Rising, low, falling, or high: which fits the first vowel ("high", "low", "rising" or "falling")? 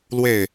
falling